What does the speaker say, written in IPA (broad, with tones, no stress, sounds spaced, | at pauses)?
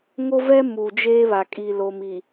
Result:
ŋ o˦ v ɛ˦ m u˨ d͡ʒ eː˦ β a˨ kʼ i˨ l o˨ m i˨